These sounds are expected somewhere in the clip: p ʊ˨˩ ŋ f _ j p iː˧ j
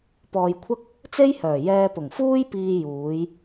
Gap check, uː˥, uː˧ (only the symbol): uː˥